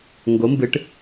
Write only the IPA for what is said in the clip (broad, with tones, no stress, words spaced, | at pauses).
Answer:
ŋɡo˧˥mbɨ˧˥ʈ